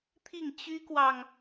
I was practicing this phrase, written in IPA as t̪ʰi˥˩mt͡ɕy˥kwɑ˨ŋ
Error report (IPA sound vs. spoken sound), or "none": m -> ŋ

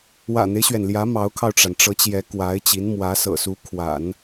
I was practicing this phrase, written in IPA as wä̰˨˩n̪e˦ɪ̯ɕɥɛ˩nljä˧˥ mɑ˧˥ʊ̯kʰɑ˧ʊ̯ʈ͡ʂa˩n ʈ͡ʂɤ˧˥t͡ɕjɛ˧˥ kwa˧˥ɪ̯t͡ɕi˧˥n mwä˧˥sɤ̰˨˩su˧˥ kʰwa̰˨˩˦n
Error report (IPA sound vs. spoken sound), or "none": none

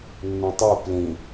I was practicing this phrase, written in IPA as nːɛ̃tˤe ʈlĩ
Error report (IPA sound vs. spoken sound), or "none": ʈ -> p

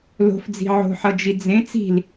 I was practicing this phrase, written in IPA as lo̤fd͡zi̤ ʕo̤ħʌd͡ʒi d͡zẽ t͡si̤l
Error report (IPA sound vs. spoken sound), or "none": none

